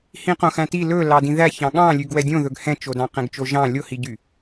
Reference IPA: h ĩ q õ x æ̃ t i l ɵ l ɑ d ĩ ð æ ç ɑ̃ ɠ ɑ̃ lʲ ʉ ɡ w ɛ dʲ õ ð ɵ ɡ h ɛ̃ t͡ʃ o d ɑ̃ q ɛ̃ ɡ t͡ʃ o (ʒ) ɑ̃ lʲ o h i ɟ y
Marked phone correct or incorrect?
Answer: correct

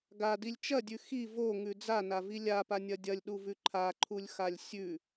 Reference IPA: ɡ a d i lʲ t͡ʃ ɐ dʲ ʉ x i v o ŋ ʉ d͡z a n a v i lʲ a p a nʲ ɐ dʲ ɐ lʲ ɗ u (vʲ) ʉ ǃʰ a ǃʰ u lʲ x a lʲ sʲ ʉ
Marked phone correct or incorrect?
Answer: incorrect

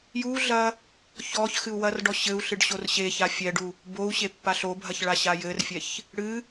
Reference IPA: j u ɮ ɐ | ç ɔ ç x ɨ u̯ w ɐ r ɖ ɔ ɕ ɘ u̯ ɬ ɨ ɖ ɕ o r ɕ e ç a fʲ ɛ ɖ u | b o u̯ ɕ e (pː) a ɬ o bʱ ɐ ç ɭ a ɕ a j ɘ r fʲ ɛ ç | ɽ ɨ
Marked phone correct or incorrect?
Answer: correct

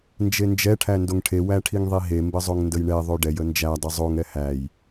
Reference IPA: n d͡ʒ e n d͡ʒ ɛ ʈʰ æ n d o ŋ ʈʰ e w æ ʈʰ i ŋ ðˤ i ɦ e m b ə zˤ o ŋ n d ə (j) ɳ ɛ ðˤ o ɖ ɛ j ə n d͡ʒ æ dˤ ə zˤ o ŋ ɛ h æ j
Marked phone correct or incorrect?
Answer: correct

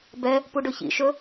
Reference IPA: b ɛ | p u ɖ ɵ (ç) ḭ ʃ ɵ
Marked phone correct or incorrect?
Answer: correct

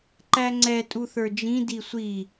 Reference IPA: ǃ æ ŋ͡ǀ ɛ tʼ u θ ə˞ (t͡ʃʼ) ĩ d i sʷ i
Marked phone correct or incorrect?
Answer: incorrect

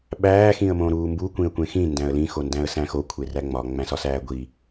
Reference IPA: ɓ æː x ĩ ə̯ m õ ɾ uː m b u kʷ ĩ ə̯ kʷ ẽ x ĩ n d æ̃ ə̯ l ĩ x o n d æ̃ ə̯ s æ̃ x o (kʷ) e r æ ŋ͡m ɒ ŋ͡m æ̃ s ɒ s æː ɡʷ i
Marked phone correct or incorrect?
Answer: incorrect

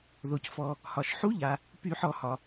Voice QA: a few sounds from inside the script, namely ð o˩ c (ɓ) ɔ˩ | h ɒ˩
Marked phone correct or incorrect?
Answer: incorrect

